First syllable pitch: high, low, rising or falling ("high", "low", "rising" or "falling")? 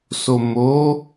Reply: low